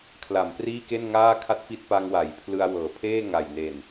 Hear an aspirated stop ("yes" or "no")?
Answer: yes